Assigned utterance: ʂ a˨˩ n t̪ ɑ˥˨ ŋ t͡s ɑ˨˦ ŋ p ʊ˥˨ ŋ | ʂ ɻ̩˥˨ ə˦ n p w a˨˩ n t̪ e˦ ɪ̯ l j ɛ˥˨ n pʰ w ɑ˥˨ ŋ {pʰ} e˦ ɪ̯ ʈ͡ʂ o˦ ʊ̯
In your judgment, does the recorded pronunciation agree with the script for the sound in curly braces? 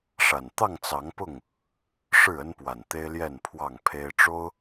yes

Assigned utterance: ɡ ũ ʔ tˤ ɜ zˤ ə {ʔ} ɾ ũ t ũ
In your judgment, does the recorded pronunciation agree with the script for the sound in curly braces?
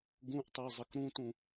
no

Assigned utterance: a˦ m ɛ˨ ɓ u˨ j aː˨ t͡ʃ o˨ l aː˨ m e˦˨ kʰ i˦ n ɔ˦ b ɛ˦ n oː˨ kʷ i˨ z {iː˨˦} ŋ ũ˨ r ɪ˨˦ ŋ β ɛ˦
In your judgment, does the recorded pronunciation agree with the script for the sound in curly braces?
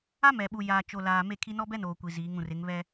yes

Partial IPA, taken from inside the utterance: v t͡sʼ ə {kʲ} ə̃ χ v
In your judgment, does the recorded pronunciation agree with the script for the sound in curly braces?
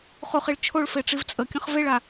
yes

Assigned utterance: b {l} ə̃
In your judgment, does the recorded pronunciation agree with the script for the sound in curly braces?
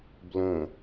yes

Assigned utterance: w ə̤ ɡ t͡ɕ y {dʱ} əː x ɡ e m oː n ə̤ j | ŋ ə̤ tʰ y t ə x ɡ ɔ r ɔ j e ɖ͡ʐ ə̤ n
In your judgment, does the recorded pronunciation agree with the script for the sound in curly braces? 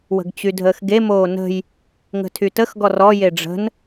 yes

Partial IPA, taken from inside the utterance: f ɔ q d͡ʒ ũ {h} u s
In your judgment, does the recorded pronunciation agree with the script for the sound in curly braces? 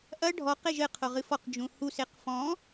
yes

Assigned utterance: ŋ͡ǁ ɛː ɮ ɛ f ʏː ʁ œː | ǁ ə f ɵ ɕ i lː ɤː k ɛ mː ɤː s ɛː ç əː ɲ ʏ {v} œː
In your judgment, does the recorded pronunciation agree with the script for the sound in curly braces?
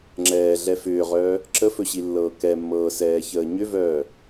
yes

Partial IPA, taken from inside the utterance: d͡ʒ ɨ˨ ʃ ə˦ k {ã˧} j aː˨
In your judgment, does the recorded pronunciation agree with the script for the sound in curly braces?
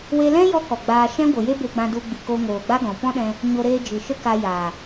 no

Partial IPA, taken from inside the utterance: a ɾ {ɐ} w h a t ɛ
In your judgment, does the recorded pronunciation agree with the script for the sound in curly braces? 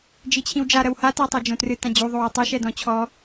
yes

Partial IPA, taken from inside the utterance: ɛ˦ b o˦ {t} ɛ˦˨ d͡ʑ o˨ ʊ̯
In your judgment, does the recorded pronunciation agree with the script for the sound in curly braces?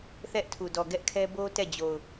yes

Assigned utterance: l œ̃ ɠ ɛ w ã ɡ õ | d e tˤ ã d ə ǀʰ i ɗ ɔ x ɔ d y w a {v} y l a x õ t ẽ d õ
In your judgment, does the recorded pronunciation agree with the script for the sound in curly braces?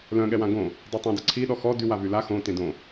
yes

